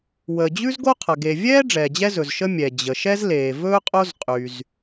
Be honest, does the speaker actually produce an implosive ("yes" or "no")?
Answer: no